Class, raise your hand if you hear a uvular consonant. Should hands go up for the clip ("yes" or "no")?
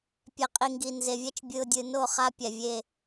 yes